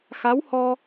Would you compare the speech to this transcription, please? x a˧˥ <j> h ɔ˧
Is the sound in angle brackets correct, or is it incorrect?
incorrect